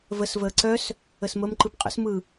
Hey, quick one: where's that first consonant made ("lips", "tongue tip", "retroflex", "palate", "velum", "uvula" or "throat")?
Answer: lips